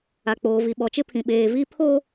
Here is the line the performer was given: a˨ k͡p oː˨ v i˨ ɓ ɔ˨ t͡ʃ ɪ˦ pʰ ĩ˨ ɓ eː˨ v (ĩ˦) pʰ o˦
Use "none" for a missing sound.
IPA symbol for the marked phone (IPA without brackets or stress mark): i˦